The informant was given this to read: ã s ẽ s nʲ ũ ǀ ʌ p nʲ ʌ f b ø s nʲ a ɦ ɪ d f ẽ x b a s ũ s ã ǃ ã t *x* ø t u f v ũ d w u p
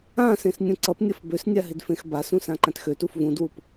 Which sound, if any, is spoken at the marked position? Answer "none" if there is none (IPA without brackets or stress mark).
x